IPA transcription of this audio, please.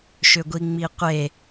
ʃʏɡʷiŋ͡miqʷe

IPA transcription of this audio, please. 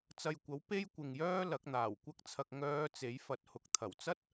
t͡sɐ˨jkʷɐ˨˥w pe˥jkʷɪ˨ŋjœː˥ lɐ˨˥k̚n̪aː˨˩wkʷɐ˥k̚t͡sʰɐ˧k̚ ŋœː˧ t͡se˨˥jfɐ˨˥t̚hʊ˨˥k̚ t̪ʰɐ˨˩wt͡sɐ˥t̚

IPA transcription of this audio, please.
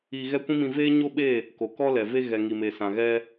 iː˧ɣɛ˦kʷĩ˦mĩ˧ veː˦ɲo˦ɓe˦˨ | ko˨kɔ˧lɛ˨ ve˧ɣɛ˨ ŋi˨me˨sã˨ ɣɛ˧

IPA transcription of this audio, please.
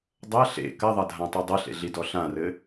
dˤɐ ɬḛ kɐðˤɐdʱãtˤi dˤɘɬḛɮidɔ ɬãrɘ

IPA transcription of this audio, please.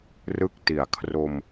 rɯ˦˥k̚ti˨˩a̯ kʰro˧m

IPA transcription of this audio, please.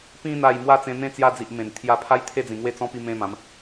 pĩ˧ n̪a˥˧j mwa˥˧t͡sẽ˧n̪ẽ˦ t͡sja˧d͡zi˨ʔ mẽ˨˩n t̪ʰja˧pʰa˦jt̪ʰe˥˧d͡zĩ˨˩ ŋwe˥˧t͡sɔ̃˦pi˧ mẽ˦mã˨˦m

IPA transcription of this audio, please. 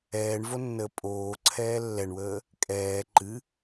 ɛːɳvonːəː pʼoːǀʰɛː lːɛɳwəː | kʼɛː ǃɨ

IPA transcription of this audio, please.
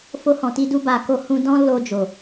fo˧hɔ̃˨ti˧du˧ ba˨ ko˨˦hũ˧ dɔ̃˦ lo˧d͡ʒo˨

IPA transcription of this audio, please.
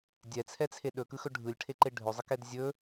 dʲɛt͡sʰɛt͡sʰe ɗɵkɯxɵ ɖʱɯlʲʈʰeǃe ɖʱɵzˤɯkɛd zʲɵ

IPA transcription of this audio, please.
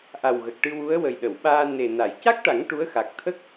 ʔa˨˩wɣə˨˩k̚ʈɨ˧wu˧˥ə̯ wə˨˩jɗə˨˩˨wɓaː˧ ne˨˩na˨˩˨j ca˦˥k̚ʈa˨˩˦ŋ ʈu˧˥ə̯xa˨˩k̚ t̪ʰə˦˥k̚

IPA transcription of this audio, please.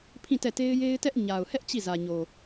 pʰĩ˦˨tɛ˦˨te˦ɪ̯ je˦ɪ̯tɛ˦ʔ ɲa˨ʊ̯hɛ˦ʔ t͡ɕi˦˨zä˨ɲo˨

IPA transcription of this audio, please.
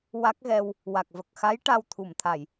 wa˦˥k̚ ɣɛ˧w | wa˨˩k̚və˨˩k̚ xa˧˥j ʈa˧wt̪ʰu˨˩˨mt̪ʰa˨˩˨j

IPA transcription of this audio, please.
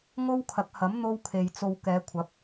ŋo˥wkʰɐ˨˥k̚hɐ˨˥m n̪o˥wkʰe˨jt͡so˧w kɛː˨˧kʷʰɐ˨˥p̚

